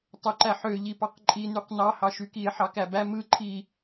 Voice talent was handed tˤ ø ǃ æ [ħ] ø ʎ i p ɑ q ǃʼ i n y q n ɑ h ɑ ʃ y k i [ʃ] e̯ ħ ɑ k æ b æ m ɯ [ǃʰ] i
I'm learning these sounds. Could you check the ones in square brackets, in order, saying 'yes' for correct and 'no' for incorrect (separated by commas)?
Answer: yes, no, yes